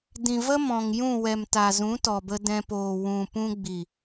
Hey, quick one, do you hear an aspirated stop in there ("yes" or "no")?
no